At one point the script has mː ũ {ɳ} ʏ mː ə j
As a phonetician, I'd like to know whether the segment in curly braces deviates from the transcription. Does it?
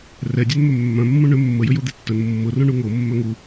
no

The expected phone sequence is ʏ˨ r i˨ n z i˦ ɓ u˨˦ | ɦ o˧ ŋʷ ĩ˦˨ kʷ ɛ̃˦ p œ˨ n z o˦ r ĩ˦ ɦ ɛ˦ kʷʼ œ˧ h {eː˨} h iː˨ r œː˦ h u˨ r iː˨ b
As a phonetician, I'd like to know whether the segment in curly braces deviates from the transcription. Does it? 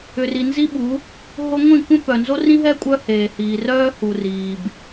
no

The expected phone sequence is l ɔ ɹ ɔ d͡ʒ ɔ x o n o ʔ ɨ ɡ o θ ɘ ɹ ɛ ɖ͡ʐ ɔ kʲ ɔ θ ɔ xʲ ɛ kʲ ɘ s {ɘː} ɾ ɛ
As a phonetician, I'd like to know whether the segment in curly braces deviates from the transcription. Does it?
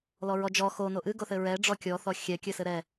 yes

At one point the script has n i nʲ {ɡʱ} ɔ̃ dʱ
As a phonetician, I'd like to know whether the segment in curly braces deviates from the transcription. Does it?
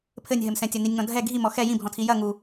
yes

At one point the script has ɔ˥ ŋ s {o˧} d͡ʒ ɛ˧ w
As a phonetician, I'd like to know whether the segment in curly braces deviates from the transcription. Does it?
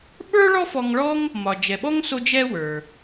no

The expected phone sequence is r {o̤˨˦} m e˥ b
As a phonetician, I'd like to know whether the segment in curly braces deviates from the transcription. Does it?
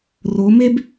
yes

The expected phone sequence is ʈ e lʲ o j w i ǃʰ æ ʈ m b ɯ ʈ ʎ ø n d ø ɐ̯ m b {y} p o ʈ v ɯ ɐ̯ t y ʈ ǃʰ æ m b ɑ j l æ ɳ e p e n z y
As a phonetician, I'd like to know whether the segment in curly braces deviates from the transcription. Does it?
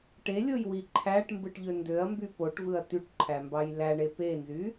no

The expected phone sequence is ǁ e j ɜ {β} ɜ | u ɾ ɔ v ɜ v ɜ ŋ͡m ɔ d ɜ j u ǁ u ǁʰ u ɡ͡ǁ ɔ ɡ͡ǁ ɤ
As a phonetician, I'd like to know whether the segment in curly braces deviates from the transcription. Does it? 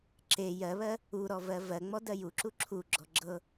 no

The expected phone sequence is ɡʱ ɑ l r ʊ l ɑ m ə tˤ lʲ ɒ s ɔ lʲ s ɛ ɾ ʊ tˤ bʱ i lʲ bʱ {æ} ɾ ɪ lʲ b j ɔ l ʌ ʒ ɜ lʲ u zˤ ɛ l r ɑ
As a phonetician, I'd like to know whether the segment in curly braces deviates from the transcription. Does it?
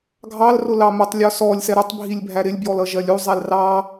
no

